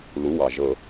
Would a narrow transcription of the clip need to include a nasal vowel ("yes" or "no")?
no